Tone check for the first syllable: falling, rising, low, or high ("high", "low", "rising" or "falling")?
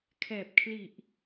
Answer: low